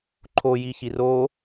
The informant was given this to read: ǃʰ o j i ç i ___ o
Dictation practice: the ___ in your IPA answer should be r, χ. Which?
r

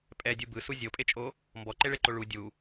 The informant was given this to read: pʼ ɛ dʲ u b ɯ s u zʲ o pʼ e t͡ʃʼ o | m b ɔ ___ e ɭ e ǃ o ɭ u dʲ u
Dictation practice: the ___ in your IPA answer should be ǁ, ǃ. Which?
ǃ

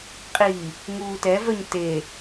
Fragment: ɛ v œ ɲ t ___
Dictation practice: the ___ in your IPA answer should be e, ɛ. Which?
e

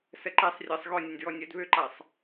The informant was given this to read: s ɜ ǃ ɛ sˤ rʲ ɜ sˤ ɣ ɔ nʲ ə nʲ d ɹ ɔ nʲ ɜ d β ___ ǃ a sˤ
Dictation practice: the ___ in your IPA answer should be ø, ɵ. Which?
ø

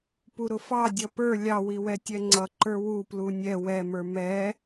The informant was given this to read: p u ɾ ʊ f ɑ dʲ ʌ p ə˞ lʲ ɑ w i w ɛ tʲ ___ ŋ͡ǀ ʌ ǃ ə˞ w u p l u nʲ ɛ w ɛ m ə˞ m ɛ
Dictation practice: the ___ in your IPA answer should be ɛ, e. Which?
ɛ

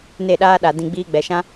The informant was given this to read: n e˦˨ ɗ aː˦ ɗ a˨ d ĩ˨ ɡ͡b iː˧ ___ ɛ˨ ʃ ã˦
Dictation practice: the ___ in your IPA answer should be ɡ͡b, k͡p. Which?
ɡ͡b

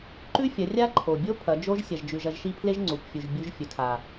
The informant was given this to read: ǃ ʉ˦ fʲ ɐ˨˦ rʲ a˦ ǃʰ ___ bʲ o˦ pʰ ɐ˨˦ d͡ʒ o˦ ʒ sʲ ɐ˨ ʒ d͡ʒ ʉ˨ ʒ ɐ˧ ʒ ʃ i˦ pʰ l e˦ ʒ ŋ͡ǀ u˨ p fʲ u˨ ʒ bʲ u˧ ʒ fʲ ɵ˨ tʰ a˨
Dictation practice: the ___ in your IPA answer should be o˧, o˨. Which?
o˨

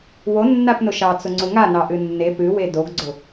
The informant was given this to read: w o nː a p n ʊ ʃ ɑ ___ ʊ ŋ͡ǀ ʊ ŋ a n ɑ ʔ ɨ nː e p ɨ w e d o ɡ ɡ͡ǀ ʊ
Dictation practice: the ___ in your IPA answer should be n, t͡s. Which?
t͡s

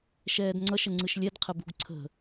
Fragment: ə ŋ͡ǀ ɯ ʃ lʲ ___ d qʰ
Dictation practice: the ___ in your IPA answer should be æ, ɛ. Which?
ɛ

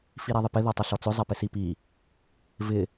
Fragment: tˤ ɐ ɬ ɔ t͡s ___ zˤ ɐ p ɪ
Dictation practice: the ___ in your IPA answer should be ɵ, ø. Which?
ɵ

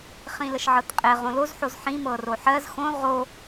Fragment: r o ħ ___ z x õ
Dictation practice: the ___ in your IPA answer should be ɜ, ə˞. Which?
ɜ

